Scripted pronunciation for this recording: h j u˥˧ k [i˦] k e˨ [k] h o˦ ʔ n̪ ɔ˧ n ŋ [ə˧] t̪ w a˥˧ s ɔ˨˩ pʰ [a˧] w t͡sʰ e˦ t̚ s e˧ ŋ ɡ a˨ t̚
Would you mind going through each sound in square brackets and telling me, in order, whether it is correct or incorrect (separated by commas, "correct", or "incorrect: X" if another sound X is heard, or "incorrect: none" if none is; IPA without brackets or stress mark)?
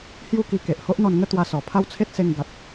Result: incorrect: i˧, incorrect: ʔ, incorrect: ə˥˧, incorrect: a˦